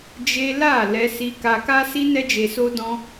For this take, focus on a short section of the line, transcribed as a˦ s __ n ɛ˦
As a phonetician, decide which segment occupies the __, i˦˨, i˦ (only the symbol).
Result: i˦